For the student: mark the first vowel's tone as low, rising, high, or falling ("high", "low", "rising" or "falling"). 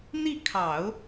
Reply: falling